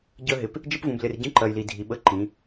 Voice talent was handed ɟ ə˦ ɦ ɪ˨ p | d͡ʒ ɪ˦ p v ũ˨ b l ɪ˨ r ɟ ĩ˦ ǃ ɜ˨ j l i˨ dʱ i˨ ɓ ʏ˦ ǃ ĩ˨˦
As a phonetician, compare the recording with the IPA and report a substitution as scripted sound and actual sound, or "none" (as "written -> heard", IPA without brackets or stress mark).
ʏ˦ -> ə˦